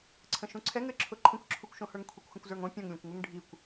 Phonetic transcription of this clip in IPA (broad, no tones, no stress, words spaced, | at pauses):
ǀʰə̃ʃũǀʰɛŋ ɘǁʰʊ ǃʰə̃kʷǁʰukʷʃõhə˞ŋ kʷʰikʷxə̃kʷzə˞ŋõ pʲõŋlʲõkʷŋuŋ ɖʱikʷ